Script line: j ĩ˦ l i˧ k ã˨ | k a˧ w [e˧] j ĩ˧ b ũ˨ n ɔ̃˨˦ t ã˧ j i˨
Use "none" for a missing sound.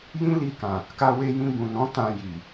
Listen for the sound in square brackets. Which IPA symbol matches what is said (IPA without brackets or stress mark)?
e˧